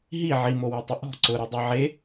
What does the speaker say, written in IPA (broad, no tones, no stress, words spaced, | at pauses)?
ɦi ʕimowetˤʊ ʔɔ̤ ǀʊɾodˤe ʕe